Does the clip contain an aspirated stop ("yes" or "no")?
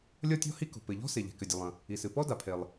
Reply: yes